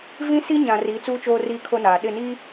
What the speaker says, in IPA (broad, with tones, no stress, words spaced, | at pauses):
vĩ˦si˦ ɲã˨riː˨˦t͡suː˦ t͡ʃoː˦riː˦kʰo˦naː˨ ɗɪ˦˨niː˦